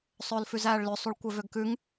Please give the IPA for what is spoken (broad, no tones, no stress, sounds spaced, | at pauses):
sˤ ɵː l f ʉ z æː ɭ l ø sˤ u ɭ kʷ œ v ø ɡ k ʉ ŋ